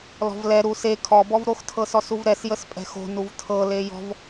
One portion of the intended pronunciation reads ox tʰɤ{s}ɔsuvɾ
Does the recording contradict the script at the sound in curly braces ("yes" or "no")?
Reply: no